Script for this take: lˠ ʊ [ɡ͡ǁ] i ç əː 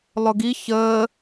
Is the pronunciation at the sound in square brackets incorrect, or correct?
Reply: incorrect